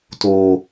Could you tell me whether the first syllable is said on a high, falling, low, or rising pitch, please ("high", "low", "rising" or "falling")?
low